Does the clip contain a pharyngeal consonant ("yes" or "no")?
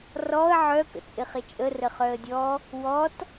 yes